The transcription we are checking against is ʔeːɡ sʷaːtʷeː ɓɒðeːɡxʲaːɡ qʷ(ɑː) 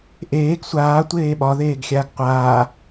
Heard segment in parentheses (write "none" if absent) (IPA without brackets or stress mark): aː